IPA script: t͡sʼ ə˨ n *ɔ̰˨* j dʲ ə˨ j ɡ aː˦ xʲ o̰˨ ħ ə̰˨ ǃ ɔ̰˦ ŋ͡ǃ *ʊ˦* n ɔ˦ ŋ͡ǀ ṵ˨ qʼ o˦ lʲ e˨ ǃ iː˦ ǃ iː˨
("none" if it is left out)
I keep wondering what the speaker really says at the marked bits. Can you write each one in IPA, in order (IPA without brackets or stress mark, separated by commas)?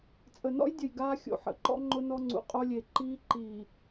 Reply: ɔ̰˦, ʊ˦